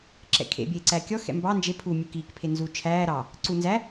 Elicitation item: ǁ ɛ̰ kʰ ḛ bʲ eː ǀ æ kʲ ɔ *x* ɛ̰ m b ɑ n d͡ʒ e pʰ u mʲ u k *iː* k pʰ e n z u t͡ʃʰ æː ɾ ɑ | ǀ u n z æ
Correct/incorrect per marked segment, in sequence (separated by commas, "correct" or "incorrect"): correct, correct